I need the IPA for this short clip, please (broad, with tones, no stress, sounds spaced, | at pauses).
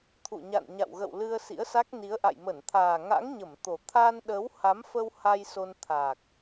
t̪ʰ ṵ˧˨ ɲ a̰˧˨ n ɲ a̰˧˨ w ɣ ə̰˧˨ w l ɨ˧ ə̯ s ḭ˧˥ ə̯ s a˦˥ k̚ n i˨˦ ə̯ ʔ a̰˧˨ j m ə˧˩ n t̪ʰ aː˨˩ ŋ a̰˧˥ ŋ ɲ ə˧˩ m t̪ o˨˩ t̪ʰ aː˧ n ɗ əː˨˦ w h a˨˦ m f ə˧ w h a˧ j s o˧ n t̪ʰ aː˨˩ k̚